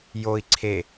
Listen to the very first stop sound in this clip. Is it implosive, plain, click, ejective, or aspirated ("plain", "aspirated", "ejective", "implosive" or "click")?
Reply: click